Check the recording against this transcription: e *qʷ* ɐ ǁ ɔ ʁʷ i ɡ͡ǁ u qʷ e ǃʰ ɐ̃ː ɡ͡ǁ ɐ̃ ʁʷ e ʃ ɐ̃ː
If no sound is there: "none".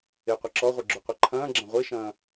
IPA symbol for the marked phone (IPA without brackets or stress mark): qʷ